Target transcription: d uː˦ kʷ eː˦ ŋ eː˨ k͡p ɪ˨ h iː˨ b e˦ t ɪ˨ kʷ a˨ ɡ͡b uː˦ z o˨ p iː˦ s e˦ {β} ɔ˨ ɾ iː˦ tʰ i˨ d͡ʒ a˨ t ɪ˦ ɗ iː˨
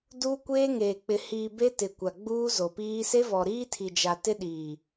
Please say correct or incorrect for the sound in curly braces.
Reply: incorrect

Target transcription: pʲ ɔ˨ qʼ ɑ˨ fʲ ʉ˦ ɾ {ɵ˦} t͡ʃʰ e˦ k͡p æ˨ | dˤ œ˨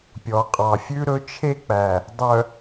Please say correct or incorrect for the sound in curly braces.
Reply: correct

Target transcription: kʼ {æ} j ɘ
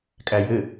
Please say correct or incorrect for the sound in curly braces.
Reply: correct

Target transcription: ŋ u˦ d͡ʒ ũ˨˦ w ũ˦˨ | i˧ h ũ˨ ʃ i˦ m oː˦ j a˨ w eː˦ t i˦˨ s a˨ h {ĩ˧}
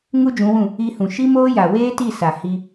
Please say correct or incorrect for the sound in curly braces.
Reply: incorrect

